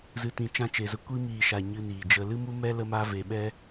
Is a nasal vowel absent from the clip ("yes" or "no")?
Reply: no